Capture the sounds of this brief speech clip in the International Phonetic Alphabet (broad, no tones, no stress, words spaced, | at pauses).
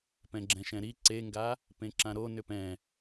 pɛ̃ɡ͡ǁɛ̃ʃɛ̃ɾi ǀeŋɡa | pẽǁãɾo nʏpɛ̃